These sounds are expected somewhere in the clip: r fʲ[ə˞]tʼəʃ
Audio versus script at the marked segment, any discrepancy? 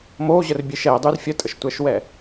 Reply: yes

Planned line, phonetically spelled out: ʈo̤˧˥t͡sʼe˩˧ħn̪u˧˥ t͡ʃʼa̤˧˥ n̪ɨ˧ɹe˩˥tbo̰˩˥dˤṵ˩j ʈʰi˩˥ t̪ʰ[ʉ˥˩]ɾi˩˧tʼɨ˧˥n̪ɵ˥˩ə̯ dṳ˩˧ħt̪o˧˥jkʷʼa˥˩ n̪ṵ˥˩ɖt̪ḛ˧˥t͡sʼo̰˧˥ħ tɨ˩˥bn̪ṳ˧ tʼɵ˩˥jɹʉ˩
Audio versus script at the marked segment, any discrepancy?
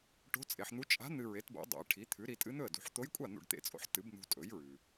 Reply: yes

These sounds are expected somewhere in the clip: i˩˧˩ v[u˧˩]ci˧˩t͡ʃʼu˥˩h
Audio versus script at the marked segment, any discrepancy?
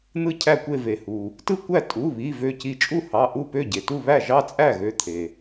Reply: yes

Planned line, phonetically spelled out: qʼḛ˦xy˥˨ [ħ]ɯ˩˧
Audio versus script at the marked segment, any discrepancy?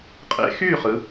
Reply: yes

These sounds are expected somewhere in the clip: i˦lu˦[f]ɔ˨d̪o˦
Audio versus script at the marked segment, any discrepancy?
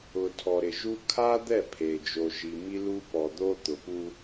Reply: yes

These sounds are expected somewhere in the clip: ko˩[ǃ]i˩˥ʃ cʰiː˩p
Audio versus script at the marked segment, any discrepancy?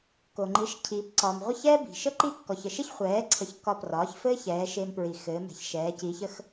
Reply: yes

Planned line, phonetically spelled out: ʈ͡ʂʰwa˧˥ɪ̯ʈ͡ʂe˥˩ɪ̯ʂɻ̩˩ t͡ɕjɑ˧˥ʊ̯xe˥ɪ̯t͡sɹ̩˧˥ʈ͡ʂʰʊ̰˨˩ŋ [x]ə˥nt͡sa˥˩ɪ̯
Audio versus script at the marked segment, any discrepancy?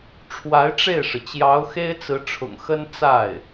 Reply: no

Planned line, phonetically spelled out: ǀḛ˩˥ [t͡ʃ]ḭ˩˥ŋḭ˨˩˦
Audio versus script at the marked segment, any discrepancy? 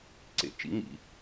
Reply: no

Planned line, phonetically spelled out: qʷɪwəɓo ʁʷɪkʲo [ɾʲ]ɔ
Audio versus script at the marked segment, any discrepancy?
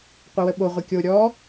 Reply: no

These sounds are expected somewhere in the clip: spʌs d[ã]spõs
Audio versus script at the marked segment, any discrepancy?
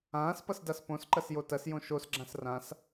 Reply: yes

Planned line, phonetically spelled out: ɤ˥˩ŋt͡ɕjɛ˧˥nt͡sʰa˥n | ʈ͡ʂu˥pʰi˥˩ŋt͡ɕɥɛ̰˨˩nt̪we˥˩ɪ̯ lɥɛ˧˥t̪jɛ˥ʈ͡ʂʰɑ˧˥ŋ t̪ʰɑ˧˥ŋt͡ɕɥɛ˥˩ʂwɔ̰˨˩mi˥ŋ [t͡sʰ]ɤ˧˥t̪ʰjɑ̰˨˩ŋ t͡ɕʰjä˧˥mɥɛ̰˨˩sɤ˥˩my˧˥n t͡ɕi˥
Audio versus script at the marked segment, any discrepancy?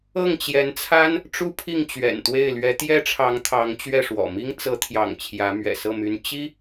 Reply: yes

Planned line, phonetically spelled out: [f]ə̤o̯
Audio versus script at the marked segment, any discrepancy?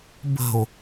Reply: yes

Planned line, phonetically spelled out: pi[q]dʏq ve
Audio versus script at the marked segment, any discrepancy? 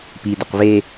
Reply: yes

